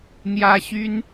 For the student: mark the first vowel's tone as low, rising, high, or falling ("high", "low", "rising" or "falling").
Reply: high